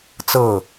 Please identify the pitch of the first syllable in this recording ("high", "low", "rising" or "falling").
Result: falling